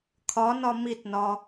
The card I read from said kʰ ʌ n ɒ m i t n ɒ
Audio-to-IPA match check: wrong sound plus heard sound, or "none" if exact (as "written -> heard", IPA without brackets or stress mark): ʌ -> ɒ